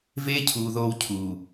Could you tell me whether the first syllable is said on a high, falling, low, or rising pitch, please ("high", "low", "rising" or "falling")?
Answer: high